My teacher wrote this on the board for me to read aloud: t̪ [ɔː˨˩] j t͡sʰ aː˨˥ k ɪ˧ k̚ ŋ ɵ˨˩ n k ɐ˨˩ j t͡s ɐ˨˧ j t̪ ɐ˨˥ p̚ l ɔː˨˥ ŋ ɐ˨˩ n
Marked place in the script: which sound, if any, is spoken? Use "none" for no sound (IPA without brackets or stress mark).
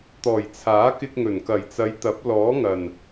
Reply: ɔː˨˩